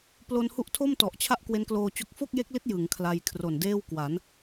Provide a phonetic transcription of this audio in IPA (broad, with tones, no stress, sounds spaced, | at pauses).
p l o˧ n h u˦˥ ʔ tʰ o˥˩ m t ɔ˨˩ ʔ t͡ɕʰ a˥˩ ʔ k w e˦˥ n k l oː˧ t͡ɕ o˦˥ k̚ f o˥˩ k̚ j e˦˥ k̚ l i˦˥ t̚ j ɯ˩˦ ŋ kʰ l a˧ j kʰ r o˨˩ n d eː˥˩ w k w a˩˦ n